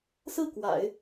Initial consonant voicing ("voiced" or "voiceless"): voiceless